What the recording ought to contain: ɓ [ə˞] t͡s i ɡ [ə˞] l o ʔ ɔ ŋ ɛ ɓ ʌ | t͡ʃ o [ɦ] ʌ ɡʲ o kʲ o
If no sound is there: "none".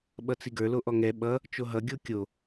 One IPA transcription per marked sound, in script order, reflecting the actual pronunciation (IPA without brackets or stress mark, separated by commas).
ʌ, ə˞, ɦ